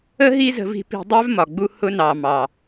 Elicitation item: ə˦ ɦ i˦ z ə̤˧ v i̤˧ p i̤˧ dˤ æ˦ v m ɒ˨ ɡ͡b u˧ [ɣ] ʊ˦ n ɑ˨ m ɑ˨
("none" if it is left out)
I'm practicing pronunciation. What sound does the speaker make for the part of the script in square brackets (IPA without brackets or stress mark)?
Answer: h